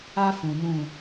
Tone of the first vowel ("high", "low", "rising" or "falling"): high